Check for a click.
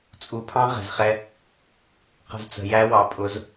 absent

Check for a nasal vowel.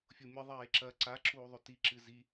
absent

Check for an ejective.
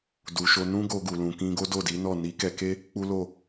absent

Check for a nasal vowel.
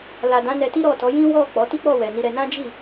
present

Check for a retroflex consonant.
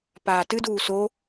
absent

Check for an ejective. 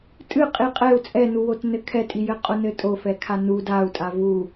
present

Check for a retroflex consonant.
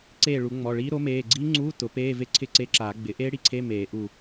present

